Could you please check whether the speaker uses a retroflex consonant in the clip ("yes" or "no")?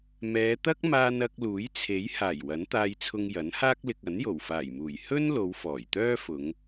no